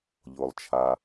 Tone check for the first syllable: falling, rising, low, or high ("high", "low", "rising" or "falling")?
low